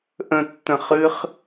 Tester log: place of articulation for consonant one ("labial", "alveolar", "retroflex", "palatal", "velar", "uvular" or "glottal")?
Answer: glottal